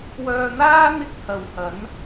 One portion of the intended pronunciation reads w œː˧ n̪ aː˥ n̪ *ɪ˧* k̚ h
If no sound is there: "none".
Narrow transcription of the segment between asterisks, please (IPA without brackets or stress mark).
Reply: ɪ˥